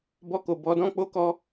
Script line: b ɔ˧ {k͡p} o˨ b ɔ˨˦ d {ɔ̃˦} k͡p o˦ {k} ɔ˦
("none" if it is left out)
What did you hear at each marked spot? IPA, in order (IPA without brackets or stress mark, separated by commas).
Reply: k, ɔ̃˦, k